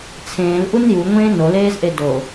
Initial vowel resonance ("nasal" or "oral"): nasal